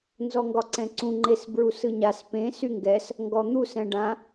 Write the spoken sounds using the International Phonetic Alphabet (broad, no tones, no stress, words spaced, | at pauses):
nzɔŋɡɒǀɛ̃ǀũ ŋ͡ǃesbɹusɯɲas pẽ syŋɡɛs | ŋɡɔn̪u sɛ̃ɖã